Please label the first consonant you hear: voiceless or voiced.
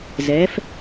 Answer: voiced